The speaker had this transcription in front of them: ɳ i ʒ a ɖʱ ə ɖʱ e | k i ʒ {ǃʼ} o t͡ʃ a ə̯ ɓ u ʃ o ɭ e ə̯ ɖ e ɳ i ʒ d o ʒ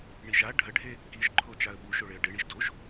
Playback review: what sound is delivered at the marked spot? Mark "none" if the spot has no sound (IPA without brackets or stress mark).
ǃʰ